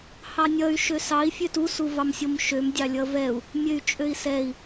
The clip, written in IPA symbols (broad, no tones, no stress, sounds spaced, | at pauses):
h ɑ nʲ ʌ y̯ ʃ ø s ɑ i̯ fʲ ø t u s u v ɑ m sʲ o m ʃ ø m dʲ ɑ lʲ ʌ v ɛ u̯ | mʲ ø y̯ t͡ʃʼ ø i̯ s ɛ i̯